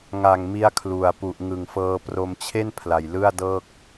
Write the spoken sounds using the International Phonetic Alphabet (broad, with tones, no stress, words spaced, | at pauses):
ŋa˨˩ŋmi˧a̯ kʰlu˨˩a̯pu˨˩ʔ ŋɯ˨˩ŋfɤː˧ pro˧m t͡ɕʰe˥˩n pʰla˨˩jlɯ˥˩a̯dɤː˥˩k̚